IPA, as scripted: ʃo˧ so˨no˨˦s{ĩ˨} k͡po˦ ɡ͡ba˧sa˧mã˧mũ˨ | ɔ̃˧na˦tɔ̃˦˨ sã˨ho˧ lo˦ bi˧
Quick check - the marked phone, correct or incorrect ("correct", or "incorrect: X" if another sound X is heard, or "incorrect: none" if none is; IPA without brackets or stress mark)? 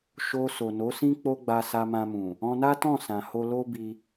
incorrect: ĩ˦